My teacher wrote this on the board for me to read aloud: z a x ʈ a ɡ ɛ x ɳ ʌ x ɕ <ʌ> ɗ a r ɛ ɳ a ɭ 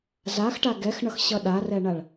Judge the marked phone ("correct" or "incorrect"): correct